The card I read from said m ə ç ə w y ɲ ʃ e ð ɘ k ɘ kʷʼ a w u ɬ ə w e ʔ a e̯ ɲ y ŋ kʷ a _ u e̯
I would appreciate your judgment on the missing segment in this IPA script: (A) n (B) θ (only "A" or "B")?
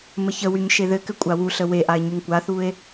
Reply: B